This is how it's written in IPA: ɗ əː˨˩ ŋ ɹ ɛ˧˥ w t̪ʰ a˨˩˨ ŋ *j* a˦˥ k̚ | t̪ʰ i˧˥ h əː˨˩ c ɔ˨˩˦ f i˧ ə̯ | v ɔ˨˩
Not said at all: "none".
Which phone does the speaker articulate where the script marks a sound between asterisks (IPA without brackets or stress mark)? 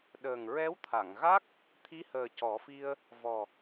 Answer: ɣ